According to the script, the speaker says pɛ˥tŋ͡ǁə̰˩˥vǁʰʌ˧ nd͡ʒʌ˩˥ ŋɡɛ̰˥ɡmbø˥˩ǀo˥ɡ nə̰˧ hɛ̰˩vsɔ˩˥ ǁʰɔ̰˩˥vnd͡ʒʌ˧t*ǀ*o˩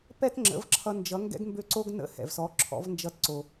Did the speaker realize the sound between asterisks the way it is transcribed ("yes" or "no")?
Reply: yes